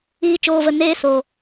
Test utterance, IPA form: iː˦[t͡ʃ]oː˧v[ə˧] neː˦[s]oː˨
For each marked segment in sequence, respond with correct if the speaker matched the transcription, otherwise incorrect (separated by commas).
correct, correct, correct